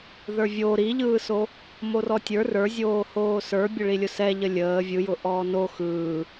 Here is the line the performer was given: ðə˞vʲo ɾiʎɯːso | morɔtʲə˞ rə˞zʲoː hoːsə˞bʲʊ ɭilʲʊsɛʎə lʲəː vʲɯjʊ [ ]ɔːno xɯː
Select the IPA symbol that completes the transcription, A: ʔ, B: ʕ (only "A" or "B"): A